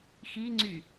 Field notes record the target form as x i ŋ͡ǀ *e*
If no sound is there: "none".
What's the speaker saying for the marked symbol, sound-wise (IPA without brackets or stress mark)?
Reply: y